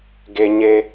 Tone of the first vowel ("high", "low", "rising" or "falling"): high